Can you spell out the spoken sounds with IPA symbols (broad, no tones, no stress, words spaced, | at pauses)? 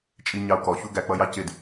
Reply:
t͡ʃʼiɲɑu̯kɔçu ɡæk͡pʌjɑ cɪd